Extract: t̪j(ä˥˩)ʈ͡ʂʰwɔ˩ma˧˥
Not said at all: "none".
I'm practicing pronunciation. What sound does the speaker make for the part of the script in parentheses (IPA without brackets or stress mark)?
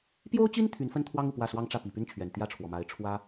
ä˥˩